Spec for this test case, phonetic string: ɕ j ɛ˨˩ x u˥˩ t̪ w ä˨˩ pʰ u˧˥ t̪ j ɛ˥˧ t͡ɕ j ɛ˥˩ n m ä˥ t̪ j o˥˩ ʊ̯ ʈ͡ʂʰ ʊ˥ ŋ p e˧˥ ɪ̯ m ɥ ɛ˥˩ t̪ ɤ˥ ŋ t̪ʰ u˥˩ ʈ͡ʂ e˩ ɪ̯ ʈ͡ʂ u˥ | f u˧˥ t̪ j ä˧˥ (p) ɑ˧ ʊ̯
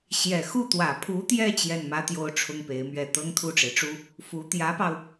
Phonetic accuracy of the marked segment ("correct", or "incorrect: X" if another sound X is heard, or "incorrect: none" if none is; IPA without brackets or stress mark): correct